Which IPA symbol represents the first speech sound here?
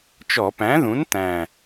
t͡ʃ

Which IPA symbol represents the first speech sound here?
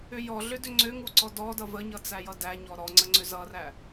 ʏ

